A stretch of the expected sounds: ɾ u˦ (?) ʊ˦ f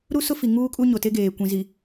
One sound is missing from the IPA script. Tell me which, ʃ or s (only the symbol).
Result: s